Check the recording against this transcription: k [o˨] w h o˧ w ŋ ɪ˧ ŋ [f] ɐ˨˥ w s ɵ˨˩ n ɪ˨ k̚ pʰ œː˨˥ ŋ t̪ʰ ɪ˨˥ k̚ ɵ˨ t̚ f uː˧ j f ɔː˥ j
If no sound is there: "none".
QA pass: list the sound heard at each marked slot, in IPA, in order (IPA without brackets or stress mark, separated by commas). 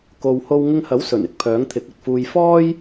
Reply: o˨, h